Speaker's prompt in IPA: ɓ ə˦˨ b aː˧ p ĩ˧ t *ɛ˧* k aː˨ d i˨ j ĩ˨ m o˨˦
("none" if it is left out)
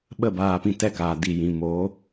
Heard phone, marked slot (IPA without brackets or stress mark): ɛ˧